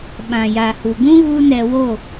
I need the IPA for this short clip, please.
ɓã˨jaː˨hu˨ɡũ˦ ɣu˦nɛ˧wo˦˨

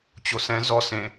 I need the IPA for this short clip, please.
t͡ɕosɛ̃ zɔ sẽ

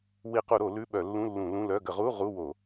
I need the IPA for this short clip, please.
wi˧˩˧qu˧˩˧ɾo˧˩˧ lʉ˧˥˧ɓœ˧˩˧lːũ˧˥˧ lːũ˧˩˧lũ˧˥˧lœ˧˥˧ ɡə˧˩˧ʁu˧˥˧ ʁu˧˥˧wo˧˩˧

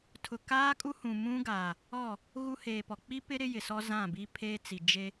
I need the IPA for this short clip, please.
tʰʊ˨kaː˦kʼu˦ hũ˨mũ˦ɡaː˨ | ɔ˦˨ | ɣu˦heː˨pɔ˨ k͡pi˦pɪ˦ ɾɪ˦jɪ˨sɔ˦ zã˦˨bi˦pʰeː˦t͡si˨ d͡ʒe˦

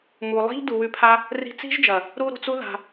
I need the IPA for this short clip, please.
mu˨lˠi̤˦ʎ du˨wʉ˧pʰa˦ | ri̤˧t͡si̤˦ʒd͡ʒɐ˨ | ɾu˧ ɾṳ˨t͡su˦ ða̤˧

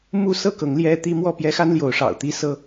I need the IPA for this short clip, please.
mu˥˨ sɤ˥˨kɤ˨˦ŋ ljɛ˦t̪i˦ mwɔ˥˨ pjɛ˦xa˦nljo˨˦ʊ̯ ʂɑ̰˨˩ʊ̯t̪i˥˨ sɤ˦

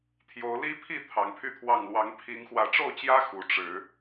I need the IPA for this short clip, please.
t̪ʰjo˨˦ʊ̯li˦pʰi˥˨ t̪ʰɑ˨˦ŋpʰy˥˨t̪ʰwɑ˥˨ŋ lwɑ˨˦ŋpʰi˨˦ŋ xwä˨˦ʈ͡ʂo˥˨ʊ̯t͡ɕjä˦ xu˨˦ʈ͡ʂɻ̩˨˦

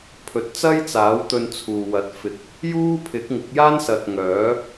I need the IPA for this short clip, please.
pʰɵ˨t̚t͡sɐ˥jt͡saː˨˥w t̪ɵ˧nt͡sʰuː˨wɐ˨˥t̚fɪ˨˥k̚ | juː˥pʰɪ˨˥k̚ŋɪ˨˥k̚jaː˥n sɐ˨t̚ ŋœː˨˥

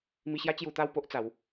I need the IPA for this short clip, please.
mi˧ɕja˦ t͡ɕju˧t̪a˥˧w po˦ʔt͡sa˨˦w

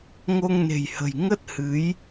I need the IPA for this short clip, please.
ŋo˧ŋne̤˨˩jhə̤˨˩j ŋə˦˥t̚hɨ˨˦j

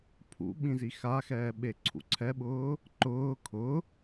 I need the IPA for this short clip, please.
pʰṵ ɓĩzixaxɛː ɓeǀʰṵǀʰɛɓʊː | ǃʊː kʰʊ

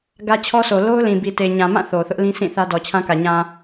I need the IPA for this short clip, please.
ɡä˦t͡ɕʰɔ˦so˨ lo˦ʊ̯lĩ˨bi˨te˨ ɲã˨mã˦˨ θo˨θʊ˦ʔlĩ˦sĩ˦˨ θä˦dɔ˨t͡ɕʰã˦kä˨ ɲã˨

